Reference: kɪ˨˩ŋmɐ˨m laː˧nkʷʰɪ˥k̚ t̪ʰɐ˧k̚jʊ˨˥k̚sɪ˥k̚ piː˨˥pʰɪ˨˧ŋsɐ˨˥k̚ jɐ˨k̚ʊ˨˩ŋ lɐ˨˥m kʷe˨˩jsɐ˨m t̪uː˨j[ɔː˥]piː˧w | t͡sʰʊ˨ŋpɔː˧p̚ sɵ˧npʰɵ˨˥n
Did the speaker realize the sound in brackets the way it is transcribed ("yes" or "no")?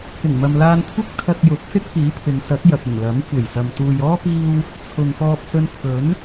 yes